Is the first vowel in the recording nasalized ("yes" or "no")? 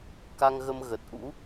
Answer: no